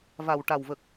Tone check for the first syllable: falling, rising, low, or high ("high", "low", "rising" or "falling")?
low